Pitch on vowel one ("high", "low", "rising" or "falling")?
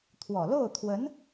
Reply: low